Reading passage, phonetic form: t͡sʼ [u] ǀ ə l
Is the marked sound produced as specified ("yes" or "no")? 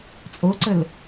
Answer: no